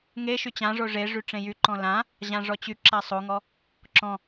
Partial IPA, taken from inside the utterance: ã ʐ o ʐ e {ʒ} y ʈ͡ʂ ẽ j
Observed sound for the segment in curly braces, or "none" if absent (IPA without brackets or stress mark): ʐ